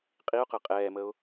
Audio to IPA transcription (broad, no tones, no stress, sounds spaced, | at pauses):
qʼ i ʊ̯ q ə qʼ ɛː m ə ʊ̯